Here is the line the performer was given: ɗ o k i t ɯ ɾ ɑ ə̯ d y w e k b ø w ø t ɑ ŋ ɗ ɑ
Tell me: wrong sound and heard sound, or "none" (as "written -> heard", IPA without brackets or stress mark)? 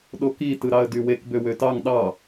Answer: none